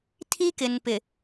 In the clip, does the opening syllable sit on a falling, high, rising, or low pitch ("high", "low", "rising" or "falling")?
high